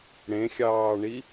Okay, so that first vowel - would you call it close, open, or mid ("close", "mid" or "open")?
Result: mid